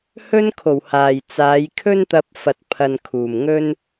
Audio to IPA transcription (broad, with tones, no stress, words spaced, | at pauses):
hɵ˥nkʰo˨˩whaː˨˩j t͡saː˨˧jkʰɵ˥nt̪ɐ˧p̚fɐ˨t̚ pʰɐ˨n kʰuː˨˩mŋɵ˥n